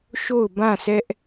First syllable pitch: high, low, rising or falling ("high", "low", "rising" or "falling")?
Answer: falling